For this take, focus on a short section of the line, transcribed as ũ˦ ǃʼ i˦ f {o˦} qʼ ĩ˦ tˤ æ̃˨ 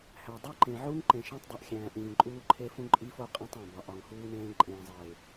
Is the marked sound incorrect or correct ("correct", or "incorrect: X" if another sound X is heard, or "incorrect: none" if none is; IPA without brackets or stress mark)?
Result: correct